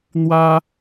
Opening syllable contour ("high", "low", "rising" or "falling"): high